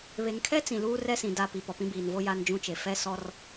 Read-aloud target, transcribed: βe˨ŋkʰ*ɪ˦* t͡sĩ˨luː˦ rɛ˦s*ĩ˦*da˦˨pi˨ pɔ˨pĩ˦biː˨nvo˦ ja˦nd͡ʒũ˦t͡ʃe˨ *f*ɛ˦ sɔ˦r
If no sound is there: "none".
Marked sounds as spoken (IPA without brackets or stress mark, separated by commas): ɛ˦, ĩ˨, f